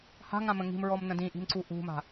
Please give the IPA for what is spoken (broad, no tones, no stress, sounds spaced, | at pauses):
h a̤ ŋ ã m ə̃ ŋ i̤ m ɹ ɔ m n ə̃ d ĩ ʔ i̤ m ǀ u ʔ ṳ m a̤